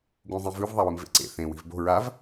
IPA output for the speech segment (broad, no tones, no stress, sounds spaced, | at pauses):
ɡ ũ zˤ ĩ v ʉ v ðˤ a w ɨ m v ḛ ǀ ḛ θ ẽ w i̤ v b o̤ ɹ a v